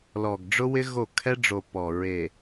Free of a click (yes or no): yes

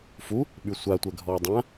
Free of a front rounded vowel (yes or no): no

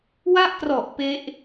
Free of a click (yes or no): yes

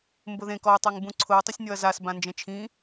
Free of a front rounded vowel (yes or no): yes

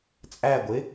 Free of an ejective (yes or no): no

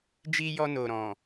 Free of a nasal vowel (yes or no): no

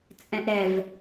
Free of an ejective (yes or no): no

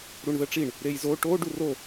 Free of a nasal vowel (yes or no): yes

